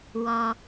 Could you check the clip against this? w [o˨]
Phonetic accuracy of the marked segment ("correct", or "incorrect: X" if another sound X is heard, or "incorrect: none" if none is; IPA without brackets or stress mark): incorrect: ɔ˨